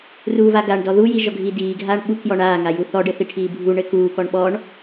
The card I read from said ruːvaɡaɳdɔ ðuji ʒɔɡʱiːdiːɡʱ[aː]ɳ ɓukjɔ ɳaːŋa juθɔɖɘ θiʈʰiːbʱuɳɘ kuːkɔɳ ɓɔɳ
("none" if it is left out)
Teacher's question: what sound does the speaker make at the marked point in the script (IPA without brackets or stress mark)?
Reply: aː